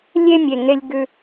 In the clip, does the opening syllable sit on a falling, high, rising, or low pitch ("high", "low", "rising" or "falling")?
high